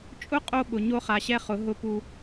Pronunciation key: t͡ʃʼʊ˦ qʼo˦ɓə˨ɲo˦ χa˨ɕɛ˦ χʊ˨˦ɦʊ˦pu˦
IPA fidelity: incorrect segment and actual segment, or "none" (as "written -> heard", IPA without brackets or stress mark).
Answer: ə˨ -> ʊ˨